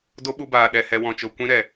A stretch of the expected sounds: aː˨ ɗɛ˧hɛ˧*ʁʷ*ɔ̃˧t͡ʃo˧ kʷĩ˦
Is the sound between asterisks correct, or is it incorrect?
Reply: incorrect